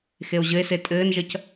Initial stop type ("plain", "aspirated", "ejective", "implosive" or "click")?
ejective